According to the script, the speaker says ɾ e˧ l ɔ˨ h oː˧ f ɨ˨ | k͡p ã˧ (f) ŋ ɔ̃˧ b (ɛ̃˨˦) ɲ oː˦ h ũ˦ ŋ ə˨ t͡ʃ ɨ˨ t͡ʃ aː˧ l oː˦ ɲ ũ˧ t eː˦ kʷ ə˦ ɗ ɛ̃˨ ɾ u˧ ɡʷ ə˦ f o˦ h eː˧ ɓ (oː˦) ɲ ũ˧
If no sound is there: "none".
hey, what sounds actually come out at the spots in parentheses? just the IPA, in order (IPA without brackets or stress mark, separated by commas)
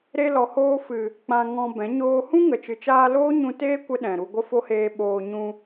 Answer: none, ɛ̃˨˦, oː˧